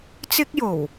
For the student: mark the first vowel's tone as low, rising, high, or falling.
high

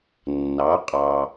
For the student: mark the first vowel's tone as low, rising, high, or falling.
rising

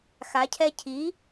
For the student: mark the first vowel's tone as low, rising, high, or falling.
rising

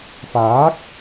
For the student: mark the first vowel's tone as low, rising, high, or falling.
rising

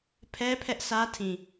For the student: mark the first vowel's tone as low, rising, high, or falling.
high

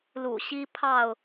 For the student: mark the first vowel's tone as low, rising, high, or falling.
low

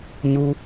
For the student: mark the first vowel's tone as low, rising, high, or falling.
high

